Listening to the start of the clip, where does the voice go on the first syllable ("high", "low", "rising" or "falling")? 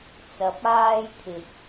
rising